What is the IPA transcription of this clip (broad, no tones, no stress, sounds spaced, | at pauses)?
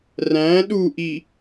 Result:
r æ̃ ɗ u ʔ i